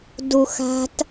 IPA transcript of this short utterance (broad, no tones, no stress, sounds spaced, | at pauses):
d u x a̤ t